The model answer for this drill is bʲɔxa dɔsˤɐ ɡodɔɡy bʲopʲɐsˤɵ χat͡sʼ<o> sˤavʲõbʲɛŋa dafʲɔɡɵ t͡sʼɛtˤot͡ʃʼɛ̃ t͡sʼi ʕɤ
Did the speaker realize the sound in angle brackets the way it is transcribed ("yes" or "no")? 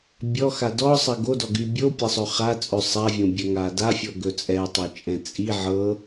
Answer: no